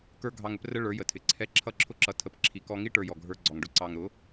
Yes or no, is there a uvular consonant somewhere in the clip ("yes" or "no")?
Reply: no